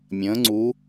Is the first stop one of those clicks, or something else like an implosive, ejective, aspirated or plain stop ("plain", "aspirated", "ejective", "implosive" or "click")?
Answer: click